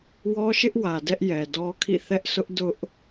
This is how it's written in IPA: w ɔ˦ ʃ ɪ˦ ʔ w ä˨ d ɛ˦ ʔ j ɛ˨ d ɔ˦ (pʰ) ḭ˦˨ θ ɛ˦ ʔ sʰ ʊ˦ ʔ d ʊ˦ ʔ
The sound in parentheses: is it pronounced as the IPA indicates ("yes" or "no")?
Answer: no